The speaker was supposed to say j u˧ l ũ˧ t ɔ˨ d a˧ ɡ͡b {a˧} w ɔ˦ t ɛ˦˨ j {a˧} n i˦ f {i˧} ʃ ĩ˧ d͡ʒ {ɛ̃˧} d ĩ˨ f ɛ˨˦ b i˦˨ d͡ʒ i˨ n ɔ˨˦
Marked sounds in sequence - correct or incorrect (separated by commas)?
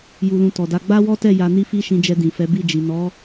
incorrect, correct, incorrect, incorrect